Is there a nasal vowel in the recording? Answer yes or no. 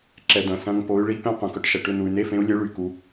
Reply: yes